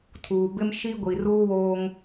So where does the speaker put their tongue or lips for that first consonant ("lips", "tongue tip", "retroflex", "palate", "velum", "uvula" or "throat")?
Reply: tongue tip